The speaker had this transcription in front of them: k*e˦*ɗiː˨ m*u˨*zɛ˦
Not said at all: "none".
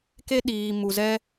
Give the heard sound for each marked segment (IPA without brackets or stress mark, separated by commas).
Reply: e˦, u˨